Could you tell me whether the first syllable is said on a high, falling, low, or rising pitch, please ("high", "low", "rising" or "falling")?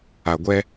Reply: low